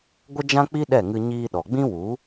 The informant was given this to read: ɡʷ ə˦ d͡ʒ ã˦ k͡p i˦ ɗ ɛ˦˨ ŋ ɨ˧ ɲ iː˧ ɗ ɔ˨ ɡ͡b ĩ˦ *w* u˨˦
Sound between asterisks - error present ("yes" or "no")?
no